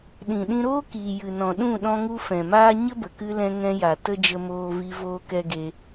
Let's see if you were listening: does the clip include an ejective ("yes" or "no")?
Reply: no